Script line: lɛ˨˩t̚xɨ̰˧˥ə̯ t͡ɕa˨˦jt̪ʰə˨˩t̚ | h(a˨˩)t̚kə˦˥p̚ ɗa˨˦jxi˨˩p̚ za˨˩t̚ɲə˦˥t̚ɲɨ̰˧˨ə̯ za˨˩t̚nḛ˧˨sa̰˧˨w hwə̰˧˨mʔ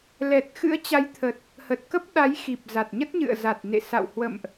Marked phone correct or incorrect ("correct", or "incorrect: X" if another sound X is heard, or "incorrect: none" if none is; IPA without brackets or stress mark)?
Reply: incorrect: ə˨˩